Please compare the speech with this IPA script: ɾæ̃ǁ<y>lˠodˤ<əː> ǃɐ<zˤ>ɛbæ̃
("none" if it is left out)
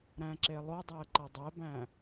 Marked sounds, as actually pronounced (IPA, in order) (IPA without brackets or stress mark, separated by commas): e, əː, dˤ